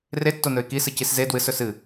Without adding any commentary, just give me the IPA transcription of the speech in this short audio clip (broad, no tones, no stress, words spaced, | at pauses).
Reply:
retːonɵɪ̯ kisɨcis ze dwɨsɵ sɨ